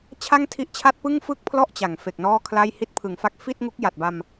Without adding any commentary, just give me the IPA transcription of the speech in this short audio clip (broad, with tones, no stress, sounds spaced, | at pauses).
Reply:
t͡ɕʰ a˥˩ ŋ tʰ i˦˥ ʔ t͡ɕʰ a˥˩ t̚ p ɯ˥˩ ŋ f ɯ˥˩ k̚ pʰ l ɔ˥˩ ʔ t͡ɕ a˩˦ ŋ f e˨˩ k̚ n ɔː˥˩ kʰ l a˥˩ j h i˦˥ t̚ pʰ ɯ˩˦ ŋ f a˦˥ k̚ f i˥˩ t̚ ŋ u˦˥ k̚ j a˨˩ t̚ b a˧ m